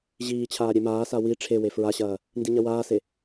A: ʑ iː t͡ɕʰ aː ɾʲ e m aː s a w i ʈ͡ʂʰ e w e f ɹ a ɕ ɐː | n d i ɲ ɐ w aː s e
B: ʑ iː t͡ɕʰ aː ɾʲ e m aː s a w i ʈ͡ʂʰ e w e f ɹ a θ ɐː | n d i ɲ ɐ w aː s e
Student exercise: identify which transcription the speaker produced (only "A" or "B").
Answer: A